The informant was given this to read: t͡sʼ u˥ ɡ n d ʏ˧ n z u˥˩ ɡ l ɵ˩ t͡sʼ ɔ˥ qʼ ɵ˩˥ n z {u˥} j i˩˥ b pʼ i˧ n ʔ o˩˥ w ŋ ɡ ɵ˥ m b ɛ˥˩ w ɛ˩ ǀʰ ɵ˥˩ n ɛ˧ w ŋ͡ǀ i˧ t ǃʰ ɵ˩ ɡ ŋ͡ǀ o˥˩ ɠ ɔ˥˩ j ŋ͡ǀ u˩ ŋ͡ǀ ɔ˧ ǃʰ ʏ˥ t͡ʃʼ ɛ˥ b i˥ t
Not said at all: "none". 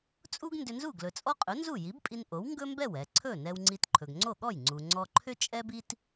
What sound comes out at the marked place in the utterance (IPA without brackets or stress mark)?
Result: u˥˩